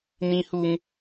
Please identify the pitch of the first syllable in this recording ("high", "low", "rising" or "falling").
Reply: high